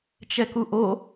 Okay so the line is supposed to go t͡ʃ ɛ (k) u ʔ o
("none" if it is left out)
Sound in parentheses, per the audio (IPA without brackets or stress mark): k